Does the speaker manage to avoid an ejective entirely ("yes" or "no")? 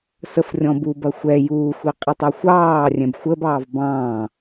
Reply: no